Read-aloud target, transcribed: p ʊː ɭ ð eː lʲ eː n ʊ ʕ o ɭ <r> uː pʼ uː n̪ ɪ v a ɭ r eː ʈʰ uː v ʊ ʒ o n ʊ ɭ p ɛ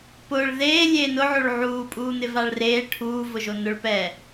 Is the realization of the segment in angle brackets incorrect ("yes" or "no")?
yes